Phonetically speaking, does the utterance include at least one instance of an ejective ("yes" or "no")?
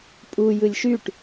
yes